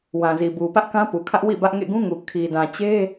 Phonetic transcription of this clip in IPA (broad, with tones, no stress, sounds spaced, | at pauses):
w ã˨ z i˨ b u˨ p ä˦ ʔ k ã˦ p u˨ kʰ ä˦ ʔ w ḭ˦˨ b ä˦ ʔ ŋ ḛ˦˨ ɡ ũ˦ ŋ u˨ kʰ i˨ d ã˨ t͡ɕ e˦